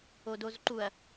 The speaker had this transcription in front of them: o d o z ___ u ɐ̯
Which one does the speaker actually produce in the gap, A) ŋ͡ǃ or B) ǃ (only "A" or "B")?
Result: B